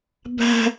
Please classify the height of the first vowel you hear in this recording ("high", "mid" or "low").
low